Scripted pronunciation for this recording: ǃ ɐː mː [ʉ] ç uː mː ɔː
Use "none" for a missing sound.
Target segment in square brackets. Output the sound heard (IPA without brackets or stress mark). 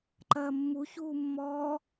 u